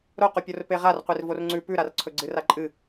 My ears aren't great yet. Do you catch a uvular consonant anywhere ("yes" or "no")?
yes